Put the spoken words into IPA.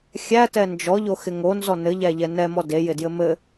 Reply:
xʲætɛ nd͡ʒɔʎoxɪ ŋonzɔ nɘʎæʎɛ nɛmɔ dejɪdjɘ mɘ

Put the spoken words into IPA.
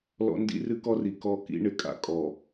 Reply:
lɔ̰˦ ndḭ˦rɨ˦kɔ˦ri˨ kɔ˦˨ kḭ˦ɳɪ˨kʼa̰˨ kʼɔ˨

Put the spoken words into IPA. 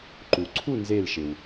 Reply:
ǃu˩ǀʰu˦˨ nzeː˦˨lʃɪ˩w

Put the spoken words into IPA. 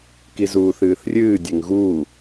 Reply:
kizuːθɨːθrʲɨː dʲeŋɣuː

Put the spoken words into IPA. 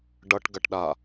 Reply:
ɖʌʈɡɐʈ ɗa

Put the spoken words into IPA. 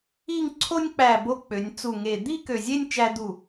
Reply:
i˥˧ŋǀʰo˥nʲk͡pæ˧˩ bo˧ k͡pø˩˧nʲt͡su˧˩ŋe˧˩ d̪i˥˧ kø˧˩zʲe˥˧nʲ t͡ʃæ˧d̪u˧˩

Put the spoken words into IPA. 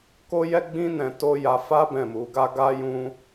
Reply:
ko˦jɛ˦ɡ͡bĩ˦ nɛ̃˧to˦ja˧ fa˦ bɛ̃˦˨mu˧ɡa˦ ɡa˦jũ˦

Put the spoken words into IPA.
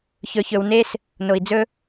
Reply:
çɵ˨çɵ˨wne˦s | no˨i̯d͡zɵ˦

